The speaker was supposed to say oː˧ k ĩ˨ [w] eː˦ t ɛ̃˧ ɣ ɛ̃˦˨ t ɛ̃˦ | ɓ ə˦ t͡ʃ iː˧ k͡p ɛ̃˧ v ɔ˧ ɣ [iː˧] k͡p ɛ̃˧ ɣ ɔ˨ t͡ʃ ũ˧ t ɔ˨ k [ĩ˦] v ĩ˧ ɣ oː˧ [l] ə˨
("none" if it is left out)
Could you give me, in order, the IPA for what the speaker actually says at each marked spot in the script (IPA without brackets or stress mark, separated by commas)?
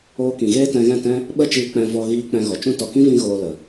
ɣ, iː˧, ĩ˦, l